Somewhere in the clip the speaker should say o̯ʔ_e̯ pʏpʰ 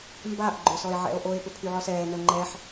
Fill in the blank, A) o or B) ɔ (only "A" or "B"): A